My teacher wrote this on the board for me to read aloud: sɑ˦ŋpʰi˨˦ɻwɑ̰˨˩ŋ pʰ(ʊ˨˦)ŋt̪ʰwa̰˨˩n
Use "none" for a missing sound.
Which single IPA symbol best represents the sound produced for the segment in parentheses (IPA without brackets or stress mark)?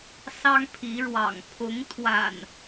ʊ˨˦